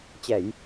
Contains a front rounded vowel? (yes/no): no